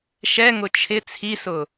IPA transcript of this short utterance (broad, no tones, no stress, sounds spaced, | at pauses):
ʃ ɛ ŋ ʊ t͡ʃʰ ɪ t͡sʰ i s ʊ